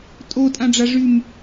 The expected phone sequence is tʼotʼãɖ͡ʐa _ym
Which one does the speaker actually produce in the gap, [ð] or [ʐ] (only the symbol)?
ʐ